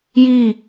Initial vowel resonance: oral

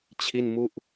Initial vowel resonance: oral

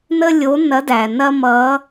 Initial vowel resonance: oral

